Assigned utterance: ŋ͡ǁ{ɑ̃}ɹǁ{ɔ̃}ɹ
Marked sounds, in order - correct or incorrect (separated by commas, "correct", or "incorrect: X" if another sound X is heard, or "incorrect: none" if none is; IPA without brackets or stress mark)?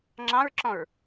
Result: correct, correct